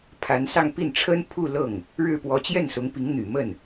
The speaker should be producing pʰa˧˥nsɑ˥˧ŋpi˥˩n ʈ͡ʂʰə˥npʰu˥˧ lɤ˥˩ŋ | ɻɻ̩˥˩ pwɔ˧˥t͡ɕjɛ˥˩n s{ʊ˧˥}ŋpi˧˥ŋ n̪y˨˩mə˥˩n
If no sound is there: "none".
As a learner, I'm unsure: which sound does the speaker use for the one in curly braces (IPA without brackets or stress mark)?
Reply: ʊ˧˥